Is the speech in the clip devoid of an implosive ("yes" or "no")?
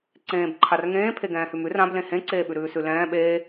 no